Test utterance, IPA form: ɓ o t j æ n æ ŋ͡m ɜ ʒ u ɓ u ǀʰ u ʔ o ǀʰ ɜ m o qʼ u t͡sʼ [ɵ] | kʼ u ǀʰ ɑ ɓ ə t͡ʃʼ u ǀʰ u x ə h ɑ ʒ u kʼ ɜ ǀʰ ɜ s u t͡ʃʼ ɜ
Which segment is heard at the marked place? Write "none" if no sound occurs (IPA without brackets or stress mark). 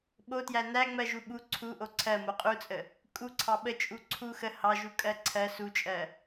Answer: ə